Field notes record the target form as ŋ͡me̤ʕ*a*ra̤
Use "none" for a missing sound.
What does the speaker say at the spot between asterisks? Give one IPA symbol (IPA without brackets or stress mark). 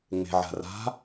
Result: a̤